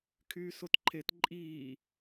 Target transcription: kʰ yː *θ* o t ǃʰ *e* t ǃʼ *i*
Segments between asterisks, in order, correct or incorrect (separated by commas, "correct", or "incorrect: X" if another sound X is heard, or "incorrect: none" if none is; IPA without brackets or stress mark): incorrect: s, correct, incorrect: iː